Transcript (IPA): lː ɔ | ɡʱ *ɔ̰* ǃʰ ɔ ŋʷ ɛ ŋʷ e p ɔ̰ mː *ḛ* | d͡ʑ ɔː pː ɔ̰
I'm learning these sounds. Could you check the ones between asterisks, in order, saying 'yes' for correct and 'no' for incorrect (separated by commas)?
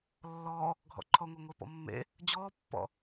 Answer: yes, yes